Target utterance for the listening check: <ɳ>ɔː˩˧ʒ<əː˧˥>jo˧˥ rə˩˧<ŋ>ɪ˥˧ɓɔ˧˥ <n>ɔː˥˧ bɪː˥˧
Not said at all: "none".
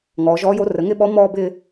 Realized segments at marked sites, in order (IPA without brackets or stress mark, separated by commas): ŋ, ɔː˧˥, ŋ, m